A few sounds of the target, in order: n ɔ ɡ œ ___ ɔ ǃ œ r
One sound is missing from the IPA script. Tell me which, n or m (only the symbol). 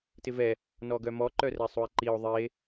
m